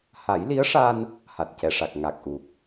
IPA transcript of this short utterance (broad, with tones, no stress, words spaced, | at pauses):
ha˨˩˦jli˧˥ə̯ʂa˧n | ha˨˩t̚cɛ˨˩ʂa˨˩k̚ ŋa˨˩k̚ʔu˨˩k̚